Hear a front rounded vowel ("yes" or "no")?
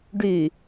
yes